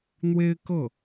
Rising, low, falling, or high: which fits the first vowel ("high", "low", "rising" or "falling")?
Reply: high